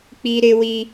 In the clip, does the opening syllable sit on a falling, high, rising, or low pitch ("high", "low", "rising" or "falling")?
high